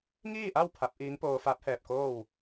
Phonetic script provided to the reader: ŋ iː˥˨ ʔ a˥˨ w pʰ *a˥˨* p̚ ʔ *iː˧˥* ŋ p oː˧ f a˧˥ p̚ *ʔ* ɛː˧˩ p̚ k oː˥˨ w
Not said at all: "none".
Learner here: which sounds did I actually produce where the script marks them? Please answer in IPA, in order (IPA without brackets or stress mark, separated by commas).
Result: a˧˥, iː˧˥, h